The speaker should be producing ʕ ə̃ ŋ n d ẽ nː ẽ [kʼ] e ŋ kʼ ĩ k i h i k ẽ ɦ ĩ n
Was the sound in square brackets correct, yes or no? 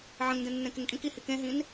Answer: no